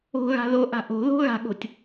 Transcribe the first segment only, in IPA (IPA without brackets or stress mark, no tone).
o̤